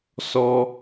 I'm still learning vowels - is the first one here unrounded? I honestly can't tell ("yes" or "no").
no